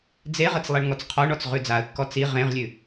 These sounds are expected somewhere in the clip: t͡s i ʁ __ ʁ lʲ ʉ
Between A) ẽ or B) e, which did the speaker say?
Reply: A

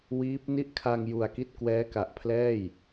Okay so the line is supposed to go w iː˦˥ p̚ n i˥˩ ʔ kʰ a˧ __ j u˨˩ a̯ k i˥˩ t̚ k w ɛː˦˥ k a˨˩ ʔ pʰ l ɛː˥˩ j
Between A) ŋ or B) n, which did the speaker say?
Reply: A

